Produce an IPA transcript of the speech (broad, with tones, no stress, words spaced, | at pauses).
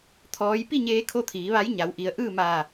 t̪ʰɔː˩˧jpi˥˨ ɲeː˧˥kʰo˥˨ t̪ʰiː˩˧ʋa˧˥jɲa˩˧w ʔi˩˧ə̯ʔɯː˥˨ maː˧˩